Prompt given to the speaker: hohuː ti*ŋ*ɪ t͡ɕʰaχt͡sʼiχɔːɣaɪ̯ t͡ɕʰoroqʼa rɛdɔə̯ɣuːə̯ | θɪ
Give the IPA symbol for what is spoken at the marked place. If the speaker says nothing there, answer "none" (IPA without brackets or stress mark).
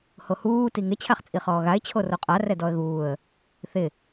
ŋ